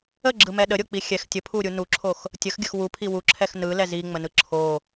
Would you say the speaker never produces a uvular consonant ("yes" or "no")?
yes